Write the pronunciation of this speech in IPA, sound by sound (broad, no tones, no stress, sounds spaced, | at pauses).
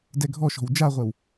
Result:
d ɛ ɡʱ ɔ ʃ ɔ̤ w d͡ʒ a ʁʷ ɛ w